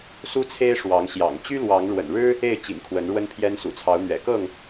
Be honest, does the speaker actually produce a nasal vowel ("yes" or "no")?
no